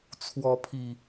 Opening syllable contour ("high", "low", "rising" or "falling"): rising